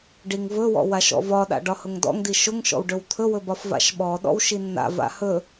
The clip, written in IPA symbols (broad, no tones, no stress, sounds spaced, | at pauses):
ɖ i ŋ v ɵ w ɔ̰ w a ʃ ɔ̰ v ɒ ɗ a̰ ɖ ɒ h ʊ ŋ d ɔ̰ ŋ d i ʃ ʊ ŋ ʃ ɔ̰ w ɖ ɵ w t̪ʰ ɵ w ɵ b ɒ f v a̰ ʃ ɓ ɔ ɗ ɔ̰ w ʃ i nː a̰ v a̰ h ɵ